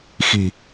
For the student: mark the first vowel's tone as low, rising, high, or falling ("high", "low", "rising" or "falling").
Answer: low